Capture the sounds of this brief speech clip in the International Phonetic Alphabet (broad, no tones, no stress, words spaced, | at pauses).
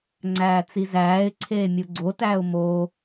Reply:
ŋ͡ǀæːt͡sizæːɪ̯ǀʰeː mʲuɡ͡ǀotæːʊ̯ moː